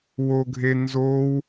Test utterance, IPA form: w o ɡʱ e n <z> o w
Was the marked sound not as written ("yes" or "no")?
no